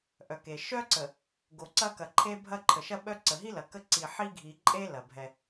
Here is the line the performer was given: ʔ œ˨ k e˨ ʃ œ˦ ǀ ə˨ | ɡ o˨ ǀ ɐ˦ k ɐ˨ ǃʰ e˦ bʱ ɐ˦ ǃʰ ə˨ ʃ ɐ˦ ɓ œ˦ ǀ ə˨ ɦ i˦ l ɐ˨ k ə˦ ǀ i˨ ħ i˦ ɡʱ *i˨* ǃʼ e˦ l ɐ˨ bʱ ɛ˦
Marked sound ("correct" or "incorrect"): correct